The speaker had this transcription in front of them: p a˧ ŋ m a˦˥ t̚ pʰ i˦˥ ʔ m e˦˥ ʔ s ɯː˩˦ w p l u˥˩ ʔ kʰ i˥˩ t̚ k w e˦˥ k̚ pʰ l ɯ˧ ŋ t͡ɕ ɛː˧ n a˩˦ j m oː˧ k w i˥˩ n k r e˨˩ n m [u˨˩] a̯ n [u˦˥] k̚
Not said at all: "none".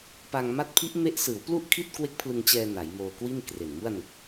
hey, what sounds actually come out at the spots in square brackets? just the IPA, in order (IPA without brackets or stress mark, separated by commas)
u˥˩, u˨˩